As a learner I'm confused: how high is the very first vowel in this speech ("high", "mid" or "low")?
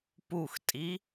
high